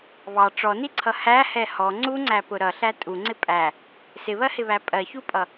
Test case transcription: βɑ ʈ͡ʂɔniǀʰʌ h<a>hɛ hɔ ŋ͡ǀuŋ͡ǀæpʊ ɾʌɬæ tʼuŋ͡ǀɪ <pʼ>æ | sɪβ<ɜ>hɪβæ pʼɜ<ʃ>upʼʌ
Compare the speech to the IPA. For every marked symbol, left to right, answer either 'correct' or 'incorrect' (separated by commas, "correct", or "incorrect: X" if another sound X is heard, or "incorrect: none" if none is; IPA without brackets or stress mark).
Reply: incorrect: æ, correct, correct, incorrect: ç